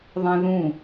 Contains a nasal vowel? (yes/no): yes